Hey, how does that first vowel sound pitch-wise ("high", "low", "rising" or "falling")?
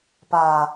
low